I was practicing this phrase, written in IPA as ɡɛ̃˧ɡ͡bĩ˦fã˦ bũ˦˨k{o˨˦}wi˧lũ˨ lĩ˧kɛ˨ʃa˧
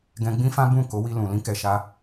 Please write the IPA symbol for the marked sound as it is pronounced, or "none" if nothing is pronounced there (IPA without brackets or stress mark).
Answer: o˨˦